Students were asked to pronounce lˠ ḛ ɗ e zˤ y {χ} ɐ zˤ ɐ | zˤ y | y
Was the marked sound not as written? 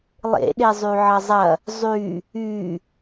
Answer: yes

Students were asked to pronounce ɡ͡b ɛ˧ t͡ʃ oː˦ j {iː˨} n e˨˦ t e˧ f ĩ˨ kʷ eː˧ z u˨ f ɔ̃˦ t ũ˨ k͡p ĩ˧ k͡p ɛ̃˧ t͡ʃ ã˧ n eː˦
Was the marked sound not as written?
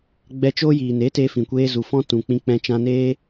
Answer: no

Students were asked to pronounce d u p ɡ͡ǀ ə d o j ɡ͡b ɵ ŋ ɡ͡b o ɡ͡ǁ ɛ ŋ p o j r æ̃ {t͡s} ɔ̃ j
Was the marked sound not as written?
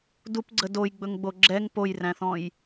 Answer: yes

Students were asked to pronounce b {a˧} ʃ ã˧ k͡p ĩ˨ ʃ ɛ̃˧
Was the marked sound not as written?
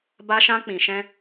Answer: no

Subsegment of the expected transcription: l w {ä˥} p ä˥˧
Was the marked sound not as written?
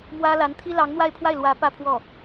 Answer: yes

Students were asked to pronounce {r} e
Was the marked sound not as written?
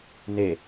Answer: yes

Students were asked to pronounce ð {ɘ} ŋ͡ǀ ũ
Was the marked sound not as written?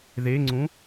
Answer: yes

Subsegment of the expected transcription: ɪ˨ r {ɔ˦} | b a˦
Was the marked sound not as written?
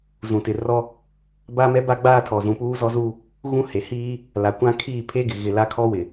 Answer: no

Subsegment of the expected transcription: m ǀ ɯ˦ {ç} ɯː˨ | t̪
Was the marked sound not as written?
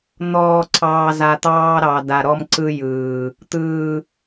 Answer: yes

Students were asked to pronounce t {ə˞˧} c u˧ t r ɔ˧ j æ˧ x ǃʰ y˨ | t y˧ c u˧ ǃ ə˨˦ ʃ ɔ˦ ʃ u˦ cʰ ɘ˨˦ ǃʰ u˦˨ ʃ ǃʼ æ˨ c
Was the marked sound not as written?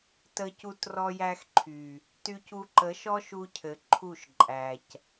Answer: yes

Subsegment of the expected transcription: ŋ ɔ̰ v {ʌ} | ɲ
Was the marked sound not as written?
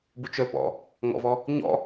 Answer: yes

